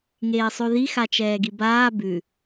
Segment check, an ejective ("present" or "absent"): absent